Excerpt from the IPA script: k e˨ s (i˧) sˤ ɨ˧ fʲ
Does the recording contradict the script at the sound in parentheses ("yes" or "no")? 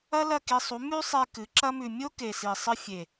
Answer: yes